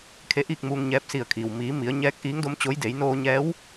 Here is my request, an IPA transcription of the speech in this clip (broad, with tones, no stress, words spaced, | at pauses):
kʰe˧˥ʔiː˥˨k̚muː˧ŋɲɛː˧˥p̚ si˧˩ə̯kʰiː˩w miː˩˧mi˩˧ə̯ ɲɛː˧˥k̚ ʔiː˧˥ŋdo˧˥mt͡ɕo˧˥j de˩˧jnoː˧ɲɛː˧˥w